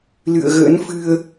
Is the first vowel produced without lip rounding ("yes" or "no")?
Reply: yes